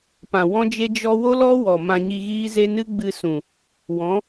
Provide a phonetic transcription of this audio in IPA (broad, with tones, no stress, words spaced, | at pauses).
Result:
pã˨ wɔ̃˦d͡ʒe˦ d͡ʒɔ˦ wo˦lɔ˦ wɔ˨ mã˧ɲi˧ɣiː˦ze˦ nɨ˦ɡ͡bɨ˧sũ˨ | wɔ̃˨˦